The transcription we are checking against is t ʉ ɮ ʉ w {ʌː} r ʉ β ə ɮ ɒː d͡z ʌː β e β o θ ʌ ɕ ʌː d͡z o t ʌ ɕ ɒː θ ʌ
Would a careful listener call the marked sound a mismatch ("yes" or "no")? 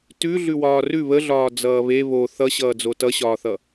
yes